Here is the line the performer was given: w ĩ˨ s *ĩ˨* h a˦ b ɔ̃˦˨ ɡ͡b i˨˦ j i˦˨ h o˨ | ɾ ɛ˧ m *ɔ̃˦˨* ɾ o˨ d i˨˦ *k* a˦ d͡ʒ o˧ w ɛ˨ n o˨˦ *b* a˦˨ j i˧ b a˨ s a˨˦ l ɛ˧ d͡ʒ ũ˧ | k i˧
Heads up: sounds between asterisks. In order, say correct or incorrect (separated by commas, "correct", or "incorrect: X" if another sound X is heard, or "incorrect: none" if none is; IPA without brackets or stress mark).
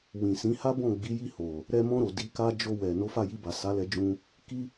incorrect: ĩ˨˦, incorrect: ɔ̃˧, correct, incorrect: f